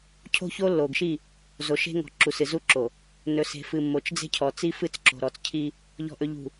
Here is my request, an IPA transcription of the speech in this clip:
cʰ o̤˦ ç o˦ lː o˨ ɡ ʃ i˦˨ | z o˨ ʃ e̤˦ ŋ ɔ̤˨ ǁ u˨ s ɨ˨ z u˦ ǁ o˨ | n ɵ˨ s e̤˨ f ɨ˨ mː o˨ t͡ʃ d͡z e̤˦ cʰ ɔ˨ t͡s i˦ f ɨ˦˨ t͡s ǁ o̤˨ ɾ ɔ˨ t͡s cʰ i˦ | ʎ ɔ̤˨ ʔ ɵ˨ ʎ ṳ˨

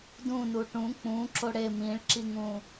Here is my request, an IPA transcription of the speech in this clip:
d ũ n u ʈ ũ k͡p ũ ǁ o ɽ e m ĩ ɭ ǁ i ŋ ũ

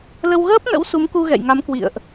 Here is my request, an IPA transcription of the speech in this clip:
l ə˧ w ɣ əː˦˥ p̚ n ə̰˧˥ w s u˨˦ m k u˧ ɣ ɛ̰˧˨ j ŋ a˨˦ m k w ḭ˧˨ ə̯ ʔ

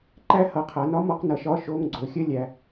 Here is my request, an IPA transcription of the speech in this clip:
ǃ æ˦˥ h ʌ˩˧ qʰ a˩˧ n ɒ˦˥ m ɒ˦˥ q n ʌ˩˧ ʃ ɒ˧˥˧ ʃ o˧˥˧ ŋ ɡ͡ǀ o˩˧ xʲ ə˦˥ lʲ æ˩˧

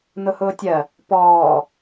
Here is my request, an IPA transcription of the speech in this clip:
n ʊ h ʊː tʲ ɜ | p ɔː

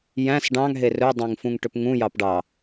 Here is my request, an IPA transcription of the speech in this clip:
j æ̃ s ɖ ɑ̃ ŋ ɦ e r ɵ dˤ õ ŋ f ũ ŋ ʈ ɵ p ŋ ũ j ɑ p ɖ ɑ

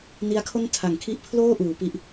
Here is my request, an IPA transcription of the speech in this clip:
n i˦˥ a̯ kʰ o˥˩ n tʰ a˩˦ ŋ kʰ i˦˥ ʔ pʰ l oː˥˩ ʔ uː˩˦ p i˥˩ ʔ

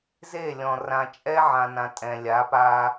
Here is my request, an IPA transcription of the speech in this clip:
z e˦˨ lʲ ɔ̃˨ r ã˨ t͡ʃʼ ɛ˦ ʕ ã˨ n ã˨ tʼ ɛ̃˨ lʲ a˨˦ p a˦

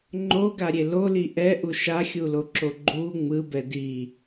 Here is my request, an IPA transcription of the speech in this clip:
ŋ͡ǃ o ɡ a ɾʲ e l o l i ʔ ɛ ʔ u ʃ a xʲ u l o ǁ o ɡ͡ǃ u ŋ͡m ɯ b ɛ d i

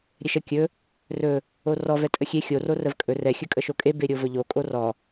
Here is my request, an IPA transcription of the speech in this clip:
ɾʲ ɛ ʃ ə kʲ ɵ | r ɵ | o r ɔ v ɛ tʼ ə xʲ e xʲ o r o r ə v kʼ ɵ r ɛ xʲ ɵ kʼ ə ʃ o kʼ e b e ɾʲ o v ɵ ʎ o kʼ o r ɔ

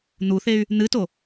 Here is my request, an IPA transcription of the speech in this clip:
n̪ u θ e y̯ | n̪ ɨ t o

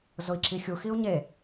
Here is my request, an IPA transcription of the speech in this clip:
z ʊ i̯ ǁ i xʲ u x i u̯ ɲ e

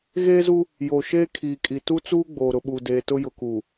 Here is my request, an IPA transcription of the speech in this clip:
ɣ eː˦ z u˦ | j oː˨ ʃ eː˦ kʰ iː˨ kʼ i˨ t u˦ t͡s uː˦ ɡ͡b oː˨ ɾ ʊ˨ ɓ u˨ d eː˨ t ʊ˦ j ʊ˨ k uː˨

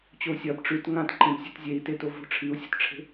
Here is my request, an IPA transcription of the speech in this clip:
t͡ɕ o u̯ sʲ ɐ b ʈ͡ʂ ʉ t ŋ ã t ǃ ẽ b sʲ ʉ t zʲ e i̯ t e t o v o̤ ʈ͡ʂʰ i u̯ sʲ o̤ t ʈ͡ʂʰ e̤

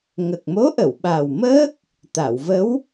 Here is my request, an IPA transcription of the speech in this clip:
ŋ ə˨˩ k̚ m o˧˥ ʔ ə˨˩˨ w ɓ a˨˩ w m əː˦˥ k̚ | t̪ a˨˩˨ w v ə˧˥ w

